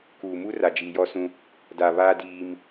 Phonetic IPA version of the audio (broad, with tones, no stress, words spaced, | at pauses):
kuː˨ mu˦ ra˨d͡ʒiː˨jɔ˦sũ˦ | da˨βa˦ diː˦m